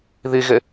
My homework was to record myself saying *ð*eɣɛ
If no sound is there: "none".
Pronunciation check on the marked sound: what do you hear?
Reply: ð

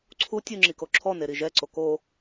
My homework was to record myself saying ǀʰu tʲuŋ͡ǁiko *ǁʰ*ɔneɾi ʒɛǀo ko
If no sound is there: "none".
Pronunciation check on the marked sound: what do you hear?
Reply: ǁʰ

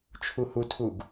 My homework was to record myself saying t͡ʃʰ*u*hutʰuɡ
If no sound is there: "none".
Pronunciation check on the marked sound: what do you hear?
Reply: u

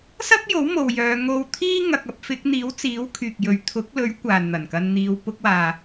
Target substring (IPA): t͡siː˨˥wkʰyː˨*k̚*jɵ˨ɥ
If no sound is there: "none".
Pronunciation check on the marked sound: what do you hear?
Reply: k̚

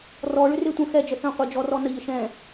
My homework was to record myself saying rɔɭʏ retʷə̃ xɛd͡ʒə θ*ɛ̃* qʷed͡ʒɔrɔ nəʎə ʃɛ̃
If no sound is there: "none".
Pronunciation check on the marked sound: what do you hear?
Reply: ə̃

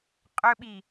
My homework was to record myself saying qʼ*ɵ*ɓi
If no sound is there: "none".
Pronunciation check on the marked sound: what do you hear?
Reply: ɵ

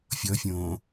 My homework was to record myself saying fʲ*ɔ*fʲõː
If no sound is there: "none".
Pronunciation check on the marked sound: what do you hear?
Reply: ɔ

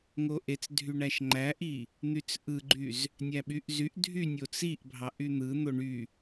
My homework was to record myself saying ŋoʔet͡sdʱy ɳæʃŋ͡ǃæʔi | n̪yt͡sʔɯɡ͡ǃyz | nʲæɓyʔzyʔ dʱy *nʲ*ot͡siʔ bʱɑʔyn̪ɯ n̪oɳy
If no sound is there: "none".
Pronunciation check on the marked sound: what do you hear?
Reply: nʲ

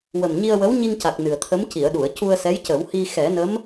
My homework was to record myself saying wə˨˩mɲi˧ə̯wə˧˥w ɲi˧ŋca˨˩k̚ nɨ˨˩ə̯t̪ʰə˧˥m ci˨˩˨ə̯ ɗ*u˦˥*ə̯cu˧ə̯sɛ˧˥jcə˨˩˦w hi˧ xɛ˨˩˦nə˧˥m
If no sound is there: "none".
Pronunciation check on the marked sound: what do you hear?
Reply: u˨˩˨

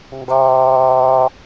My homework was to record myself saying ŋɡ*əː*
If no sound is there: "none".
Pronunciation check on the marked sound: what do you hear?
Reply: ɑː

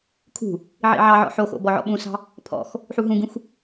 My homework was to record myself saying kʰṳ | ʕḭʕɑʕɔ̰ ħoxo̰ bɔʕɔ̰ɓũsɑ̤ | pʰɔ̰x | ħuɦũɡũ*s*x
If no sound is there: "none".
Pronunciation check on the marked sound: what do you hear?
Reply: none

